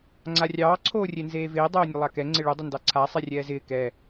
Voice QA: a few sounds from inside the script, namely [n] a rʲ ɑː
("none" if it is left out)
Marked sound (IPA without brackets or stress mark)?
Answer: ŋ͡ǀ